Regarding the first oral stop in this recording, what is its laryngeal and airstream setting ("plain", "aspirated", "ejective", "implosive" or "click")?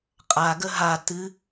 ejective